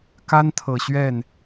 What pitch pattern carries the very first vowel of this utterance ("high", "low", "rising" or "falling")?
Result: high